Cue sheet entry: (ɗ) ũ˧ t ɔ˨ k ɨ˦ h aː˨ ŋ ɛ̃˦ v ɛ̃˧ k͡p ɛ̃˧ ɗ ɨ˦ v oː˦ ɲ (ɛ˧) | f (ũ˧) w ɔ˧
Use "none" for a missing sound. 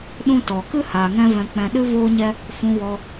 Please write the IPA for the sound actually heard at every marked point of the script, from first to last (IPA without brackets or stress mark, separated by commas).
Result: ɗ, ɛ˦, ũ˧